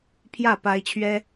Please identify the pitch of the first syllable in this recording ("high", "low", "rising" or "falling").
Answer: falling